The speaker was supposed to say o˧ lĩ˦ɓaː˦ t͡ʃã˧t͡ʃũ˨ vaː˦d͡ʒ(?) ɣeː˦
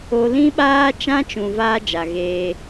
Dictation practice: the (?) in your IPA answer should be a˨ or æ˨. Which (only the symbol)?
a˨